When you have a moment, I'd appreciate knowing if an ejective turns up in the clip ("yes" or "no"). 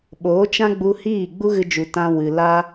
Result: no